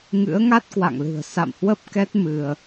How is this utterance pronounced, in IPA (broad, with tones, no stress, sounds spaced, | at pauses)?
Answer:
ŋ ɨ̰˧˥ ə̯ ŋ a˦˥ t̚ k w a̰˧˨ ŋ l ɨ̤˨˩ ə̯ s a̰˧˨ m h w ə˦˥ p̚ k ɛ˦˥ t̚ m ɨ˧ ə̯